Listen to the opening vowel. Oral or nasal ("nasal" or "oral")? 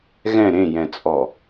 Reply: nasal